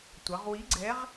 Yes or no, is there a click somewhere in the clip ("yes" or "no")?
yes